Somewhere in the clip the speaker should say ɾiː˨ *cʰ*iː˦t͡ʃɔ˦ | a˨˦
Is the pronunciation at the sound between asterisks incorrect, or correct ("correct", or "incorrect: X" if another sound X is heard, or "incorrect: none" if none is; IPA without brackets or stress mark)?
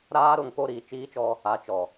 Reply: incorrect: t͡ʃ